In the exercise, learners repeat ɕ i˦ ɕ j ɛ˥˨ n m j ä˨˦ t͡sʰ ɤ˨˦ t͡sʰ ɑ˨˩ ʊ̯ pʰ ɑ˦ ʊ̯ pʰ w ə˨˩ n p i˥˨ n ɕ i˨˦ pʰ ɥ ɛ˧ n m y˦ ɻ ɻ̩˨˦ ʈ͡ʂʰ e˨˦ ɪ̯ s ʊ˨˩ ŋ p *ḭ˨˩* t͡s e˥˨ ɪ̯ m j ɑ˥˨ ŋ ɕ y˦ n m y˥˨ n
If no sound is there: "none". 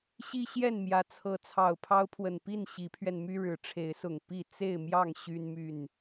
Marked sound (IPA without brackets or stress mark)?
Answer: i˥˨